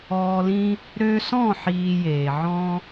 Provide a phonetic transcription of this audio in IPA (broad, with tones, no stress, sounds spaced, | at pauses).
ɔː˧ l ĩ˦ | ɾ ø˧ s ɔ̃˦˨ ħ iː˧ j eː˨ ʕ ɔ̃˦